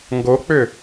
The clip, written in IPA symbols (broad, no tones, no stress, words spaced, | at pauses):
ŋɡok͡pʏ